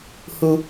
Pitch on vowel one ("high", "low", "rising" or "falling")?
low